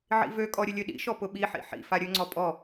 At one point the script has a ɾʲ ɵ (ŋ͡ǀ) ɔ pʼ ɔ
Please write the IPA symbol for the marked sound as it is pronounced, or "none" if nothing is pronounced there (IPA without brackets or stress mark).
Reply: ŋ͡ǀ